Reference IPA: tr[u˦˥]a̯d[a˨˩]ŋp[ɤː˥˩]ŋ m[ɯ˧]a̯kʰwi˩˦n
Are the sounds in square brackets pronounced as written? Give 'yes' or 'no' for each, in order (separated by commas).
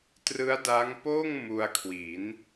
no, no, no, no